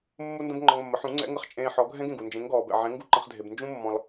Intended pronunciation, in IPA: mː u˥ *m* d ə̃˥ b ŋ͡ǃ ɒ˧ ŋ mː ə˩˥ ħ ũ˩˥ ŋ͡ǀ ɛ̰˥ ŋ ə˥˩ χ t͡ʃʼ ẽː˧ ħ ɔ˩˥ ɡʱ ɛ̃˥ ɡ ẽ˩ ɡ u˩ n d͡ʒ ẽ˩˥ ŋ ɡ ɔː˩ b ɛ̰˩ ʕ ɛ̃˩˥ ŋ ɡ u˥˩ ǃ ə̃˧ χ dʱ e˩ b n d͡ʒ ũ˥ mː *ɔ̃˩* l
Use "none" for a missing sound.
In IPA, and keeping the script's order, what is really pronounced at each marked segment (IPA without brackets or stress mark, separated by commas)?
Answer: n, ɔ̃˩